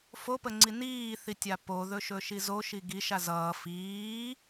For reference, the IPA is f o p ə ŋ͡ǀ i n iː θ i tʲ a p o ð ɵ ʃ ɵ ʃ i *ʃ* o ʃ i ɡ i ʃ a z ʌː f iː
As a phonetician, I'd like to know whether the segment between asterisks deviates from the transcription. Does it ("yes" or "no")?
yes